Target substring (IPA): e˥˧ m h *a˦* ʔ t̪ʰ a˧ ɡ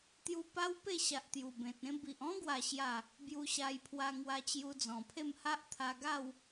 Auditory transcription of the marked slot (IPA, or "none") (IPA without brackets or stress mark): a˦